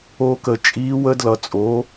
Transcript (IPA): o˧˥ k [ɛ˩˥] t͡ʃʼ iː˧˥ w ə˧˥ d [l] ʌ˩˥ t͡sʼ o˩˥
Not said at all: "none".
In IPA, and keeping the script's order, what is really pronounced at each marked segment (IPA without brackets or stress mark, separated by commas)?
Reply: ə˩˥, l